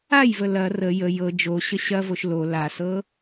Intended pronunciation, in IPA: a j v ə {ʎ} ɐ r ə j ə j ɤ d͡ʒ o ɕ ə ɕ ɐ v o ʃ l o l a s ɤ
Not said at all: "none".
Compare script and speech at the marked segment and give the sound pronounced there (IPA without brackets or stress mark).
l